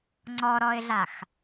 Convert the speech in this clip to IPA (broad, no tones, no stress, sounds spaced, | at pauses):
ŋ͡ǀ ɔ ɾ ɔ ɪ̯ ɮ a x